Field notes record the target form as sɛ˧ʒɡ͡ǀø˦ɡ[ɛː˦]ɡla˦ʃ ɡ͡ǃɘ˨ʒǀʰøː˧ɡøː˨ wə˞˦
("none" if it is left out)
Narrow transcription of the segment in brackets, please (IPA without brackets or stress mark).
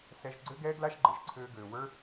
ɛː˦